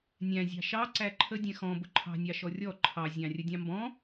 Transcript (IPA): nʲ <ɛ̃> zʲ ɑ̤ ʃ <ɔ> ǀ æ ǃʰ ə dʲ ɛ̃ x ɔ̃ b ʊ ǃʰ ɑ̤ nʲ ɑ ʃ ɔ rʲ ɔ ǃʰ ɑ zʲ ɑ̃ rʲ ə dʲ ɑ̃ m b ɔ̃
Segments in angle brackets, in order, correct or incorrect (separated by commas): incorrect, incorrect